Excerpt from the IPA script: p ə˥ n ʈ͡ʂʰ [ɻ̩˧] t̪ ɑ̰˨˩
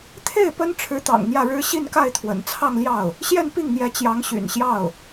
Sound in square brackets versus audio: incorrect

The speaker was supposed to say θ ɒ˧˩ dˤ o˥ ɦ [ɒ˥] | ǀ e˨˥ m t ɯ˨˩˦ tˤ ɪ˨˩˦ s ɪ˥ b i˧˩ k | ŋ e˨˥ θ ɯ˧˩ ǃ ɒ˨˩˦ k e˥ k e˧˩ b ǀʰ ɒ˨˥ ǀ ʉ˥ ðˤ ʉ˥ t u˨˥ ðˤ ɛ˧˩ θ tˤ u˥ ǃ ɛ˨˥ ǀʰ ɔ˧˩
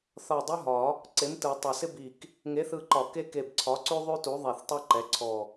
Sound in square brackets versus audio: incorrect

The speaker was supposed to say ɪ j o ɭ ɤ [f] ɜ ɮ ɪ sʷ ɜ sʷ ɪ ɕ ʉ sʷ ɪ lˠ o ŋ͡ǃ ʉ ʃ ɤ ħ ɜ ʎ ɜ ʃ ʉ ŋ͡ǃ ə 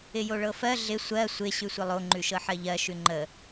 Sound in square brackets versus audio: correct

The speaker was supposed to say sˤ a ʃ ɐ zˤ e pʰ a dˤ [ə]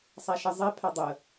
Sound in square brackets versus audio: correct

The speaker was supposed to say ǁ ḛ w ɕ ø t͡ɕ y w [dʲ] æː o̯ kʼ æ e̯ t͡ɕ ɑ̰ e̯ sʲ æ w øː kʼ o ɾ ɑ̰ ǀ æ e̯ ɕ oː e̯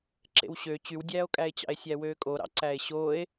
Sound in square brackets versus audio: correct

